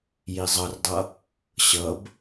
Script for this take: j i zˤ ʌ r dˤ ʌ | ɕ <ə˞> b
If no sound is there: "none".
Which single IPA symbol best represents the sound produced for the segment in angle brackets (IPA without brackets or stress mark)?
ʌ